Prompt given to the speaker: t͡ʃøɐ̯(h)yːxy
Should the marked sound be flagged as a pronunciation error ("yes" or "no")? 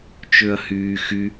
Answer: no